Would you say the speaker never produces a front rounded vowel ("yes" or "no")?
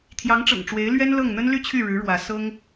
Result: no